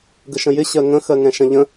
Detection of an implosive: absent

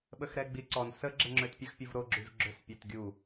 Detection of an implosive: present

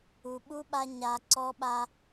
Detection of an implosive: present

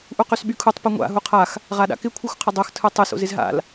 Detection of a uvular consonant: present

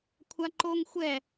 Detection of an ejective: absent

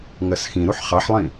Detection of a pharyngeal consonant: present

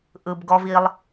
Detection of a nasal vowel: absent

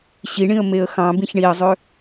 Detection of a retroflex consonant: present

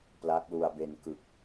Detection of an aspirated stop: absent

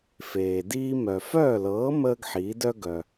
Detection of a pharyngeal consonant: present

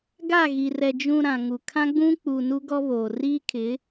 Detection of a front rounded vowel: absent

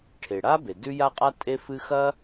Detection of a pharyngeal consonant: absent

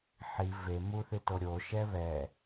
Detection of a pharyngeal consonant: present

